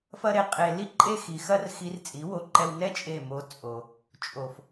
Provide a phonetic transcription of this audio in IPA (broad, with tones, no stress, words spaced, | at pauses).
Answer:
fɐ˦ɾe˧ qʼe˧ li˦ǃʼe˦xi˨ xɐ˦rxi˧rt͡sʼi˨˦wo˧ ǃɛ˧wnɛ˦ t͡ʃʼe˦˨mo˧ t͡sʼo˨ | t͡ʃʼo˨f